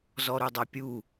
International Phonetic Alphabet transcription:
z ɔ ɾ u dˤ a pʲ u

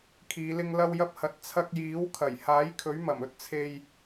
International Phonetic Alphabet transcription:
kʰ iː˨˧ l ɪ˧ ŋ l ɐ˧ w j ɐ˧ p̚ h ɐ˨ t̚ t͡sʰ ɐ˧ k̚ j iː˨˥ w kʰ ɐ˨˩ j h aː˨˥ j kʰ ɵ˨˥ ɥ m ɐ˨˩ m ɵ˥ t̚ t͡sʰ e˧ j

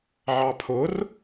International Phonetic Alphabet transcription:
ʕ ɑ pʰ ʊ r

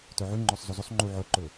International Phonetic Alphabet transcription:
t œ ʕ ʉ ŋ͡ǃ ɔ sˤ z ɵ z ɵ sˤ ŋ͡ǃ u ʕ œ ǃ ɵ

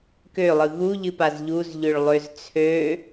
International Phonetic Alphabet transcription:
k ø lˠ ɯ ɣ u ʎ ɨ p a z ʎ u z ʎ ø ɭ lˠ ø z t͡sʰ ø

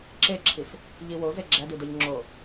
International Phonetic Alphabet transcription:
ǁ e ǁʰ i s | ʎ i w o z e ɡ͡ǁ æ d u d e ʎ ŋ͡ǁ o

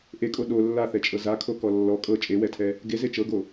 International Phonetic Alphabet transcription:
ʔ e kʼ o ɗ o lː a θ ɛ t͡ʃʼ ɤ z a kʰ o k ɔ lː ɔ kʼ ɤ t͡ʃʼ e w ɛ tʰ ɛ | ɡ e z e t͡ʃ ɤ ɡ o

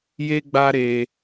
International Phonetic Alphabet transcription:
j e˦ ɡ͡b a˦ ɾ e˧

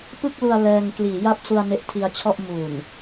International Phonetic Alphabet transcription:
p ɯ˥˩ k̚ l u˧ a̯ l ɛː˧ ŋ k l iː˩˦ j a˥˩ p̚ s u˧ a̯ n e˦˥ ʔ tʰ i˧ a̯ t͡ɕʰ ɔ˥˩ ʔ m uː˨˩ n

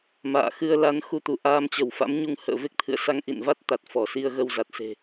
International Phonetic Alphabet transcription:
m a̰ː˧˨ x ɨ˧ ə̯ l a˨˦ n x u˧ t̪ u˧˩ ʔ aː˧ m t͡ɕ ə˧˩ w f a̰˧˥ m ɲ u˧ ŋ h ə̰ː˧˨ v e˦˥ k̚ t̪ʰ ɨ̰˧˨ ə̯ s a˧ ŋ ʔ ḭ˧˨ n v a˦˥ t̚ t̪ a˨˩ t̚ f ɔ˧˩ s i˧ ə̯ ɣ ə˧ w z a˨˩ t̚ s e̤˨˩

